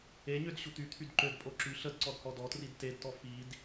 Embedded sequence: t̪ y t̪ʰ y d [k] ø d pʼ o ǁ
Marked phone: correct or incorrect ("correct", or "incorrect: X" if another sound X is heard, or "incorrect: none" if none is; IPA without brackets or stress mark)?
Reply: incorrect: ǃ